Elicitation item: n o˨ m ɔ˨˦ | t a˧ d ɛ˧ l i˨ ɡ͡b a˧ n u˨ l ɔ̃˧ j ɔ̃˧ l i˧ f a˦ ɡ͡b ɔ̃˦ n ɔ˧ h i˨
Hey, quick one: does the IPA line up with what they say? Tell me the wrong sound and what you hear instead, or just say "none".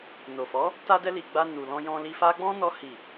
m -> f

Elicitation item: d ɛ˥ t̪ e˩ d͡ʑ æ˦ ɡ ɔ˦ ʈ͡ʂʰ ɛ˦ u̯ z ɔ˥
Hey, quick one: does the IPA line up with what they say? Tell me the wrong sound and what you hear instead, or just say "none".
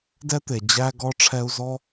none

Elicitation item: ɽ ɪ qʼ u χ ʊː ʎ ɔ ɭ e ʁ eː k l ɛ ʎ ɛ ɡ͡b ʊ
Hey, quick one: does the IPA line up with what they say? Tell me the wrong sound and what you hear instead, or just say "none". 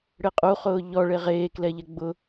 none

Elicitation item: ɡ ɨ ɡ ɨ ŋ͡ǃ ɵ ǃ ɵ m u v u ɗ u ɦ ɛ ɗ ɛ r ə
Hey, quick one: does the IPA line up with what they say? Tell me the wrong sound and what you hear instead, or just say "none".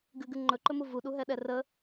none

